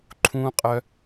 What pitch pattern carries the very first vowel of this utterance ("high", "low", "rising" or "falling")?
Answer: high